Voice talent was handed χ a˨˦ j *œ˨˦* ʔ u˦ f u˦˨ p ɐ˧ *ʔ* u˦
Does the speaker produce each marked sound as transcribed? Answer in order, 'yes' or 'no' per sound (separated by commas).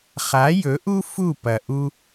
no, yes